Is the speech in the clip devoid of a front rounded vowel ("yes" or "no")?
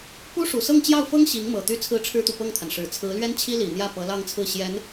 no